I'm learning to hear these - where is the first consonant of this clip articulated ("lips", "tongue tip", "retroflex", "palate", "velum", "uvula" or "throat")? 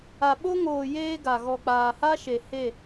lips